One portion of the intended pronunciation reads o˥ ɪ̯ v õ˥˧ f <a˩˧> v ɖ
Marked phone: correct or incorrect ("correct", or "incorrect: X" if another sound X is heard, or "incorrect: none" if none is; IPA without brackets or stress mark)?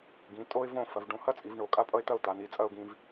incorrect: ɐ˩˧